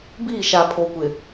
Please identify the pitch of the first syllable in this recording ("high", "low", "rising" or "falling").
falling